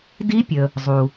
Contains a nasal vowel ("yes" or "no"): no